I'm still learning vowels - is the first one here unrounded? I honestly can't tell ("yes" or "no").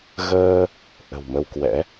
yes